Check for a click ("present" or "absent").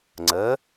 present